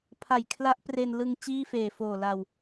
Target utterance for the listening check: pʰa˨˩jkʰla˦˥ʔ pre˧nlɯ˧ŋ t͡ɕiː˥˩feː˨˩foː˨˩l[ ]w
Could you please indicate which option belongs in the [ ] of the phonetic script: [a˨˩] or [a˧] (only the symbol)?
a˨˩